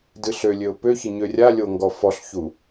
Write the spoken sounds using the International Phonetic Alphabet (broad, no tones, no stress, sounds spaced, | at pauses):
d ɨ ɬ ø lʲ ø ʊ̯ p ø ç ɨ ɲ ø rʲ a lʲ o ŋ ɡ ɔ f ɔ ɬ ç u